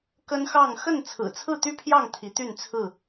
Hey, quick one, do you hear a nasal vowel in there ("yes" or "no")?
no